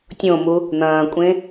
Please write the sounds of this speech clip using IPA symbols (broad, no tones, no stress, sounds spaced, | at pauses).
tʲ õ m u | n̪ ɐ̃ː kʷʼ ẽ